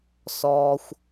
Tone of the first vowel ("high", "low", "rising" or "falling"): low